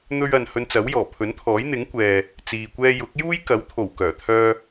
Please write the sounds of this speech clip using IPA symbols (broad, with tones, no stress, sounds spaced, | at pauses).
n̪ ɵ˥ ɥ ɐ˧ n h ɵ˧ n t͡s ɐ˨˥ w j ɔː˨˩ pʰ ɵ˨˥ n t̪ʰ ɔː˨˥ j n̪ ɪ˨˥ ŋ kʷ ɛː˨ | t͡s iː˧ kʷ ɛː˥ j ʊ˨˥ k̚ j uː˥ j k ɐ˨˥ w t̪ʰ o˨˩ w k œː˨˩ t̪ʰ œː˧